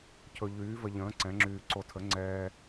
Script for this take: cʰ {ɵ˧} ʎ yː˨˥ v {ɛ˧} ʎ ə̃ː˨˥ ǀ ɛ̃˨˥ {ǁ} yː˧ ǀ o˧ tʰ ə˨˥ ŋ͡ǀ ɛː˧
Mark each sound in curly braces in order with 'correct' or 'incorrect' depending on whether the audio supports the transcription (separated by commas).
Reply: correct, incorrect, incorrect